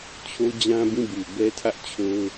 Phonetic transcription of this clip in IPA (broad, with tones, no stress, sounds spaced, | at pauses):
t͡ɕʰ o˦ d͡ʑ ã˦ b ĩ˦˨ b u˨ b ɛ˦ tʰ ä˦ ʔ t͡ɕʰ o˦ ʊ̯